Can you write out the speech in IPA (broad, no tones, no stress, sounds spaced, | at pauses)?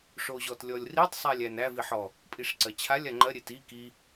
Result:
ʂ o ʑ ɔ t lʲ ɔ lʲ r i tˤ sˤ æ lʲ æ n æ v i ħ ɔ | pʼ i ʂ ǀ ɜ t͡ɕʰ a lʲ a ŋ͡ǃ ɜ ɾʲ e t i k i